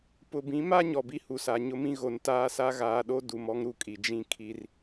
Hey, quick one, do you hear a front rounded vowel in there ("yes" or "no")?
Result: no